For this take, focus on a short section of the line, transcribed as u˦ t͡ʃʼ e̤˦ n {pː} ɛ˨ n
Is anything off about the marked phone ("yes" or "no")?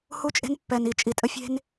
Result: no